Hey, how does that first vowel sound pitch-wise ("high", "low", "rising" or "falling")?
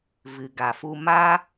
low